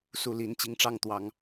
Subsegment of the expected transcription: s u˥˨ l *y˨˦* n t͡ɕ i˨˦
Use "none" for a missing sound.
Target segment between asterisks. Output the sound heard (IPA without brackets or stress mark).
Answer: i˨˦